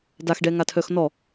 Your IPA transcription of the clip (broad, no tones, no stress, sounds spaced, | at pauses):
d a x ɖ ɛ ŋ a tʰ œ x n ɔ